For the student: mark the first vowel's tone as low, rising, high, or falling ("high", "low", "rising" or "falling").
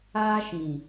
high